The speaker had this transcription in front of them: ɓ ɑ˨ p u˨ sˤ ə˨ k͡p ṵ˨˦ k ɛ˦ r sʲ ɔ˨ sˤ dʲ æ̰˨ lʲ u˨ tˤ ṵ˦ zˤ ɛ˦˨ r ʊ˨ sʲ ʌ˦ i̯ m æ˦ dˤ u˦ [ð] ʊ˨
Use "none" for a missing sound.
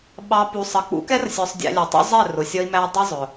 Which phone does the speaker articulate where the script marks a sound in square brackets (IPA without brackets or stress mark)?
zˤ